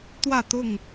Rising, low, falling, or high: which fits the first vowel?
falling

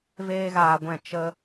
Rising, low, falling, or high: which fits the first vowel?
high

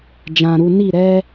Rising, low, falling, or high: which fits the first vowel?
low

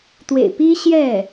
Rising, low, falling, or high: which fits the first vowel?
low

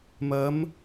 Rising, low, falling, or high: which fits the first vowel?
rising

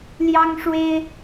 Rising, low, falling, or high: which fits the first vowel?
high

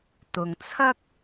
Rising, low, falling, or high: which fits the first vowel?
low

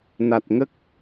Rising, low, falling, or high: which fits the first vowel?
low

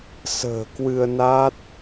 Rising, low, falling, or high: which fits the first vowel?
low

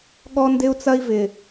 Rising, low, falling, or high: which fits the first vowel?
high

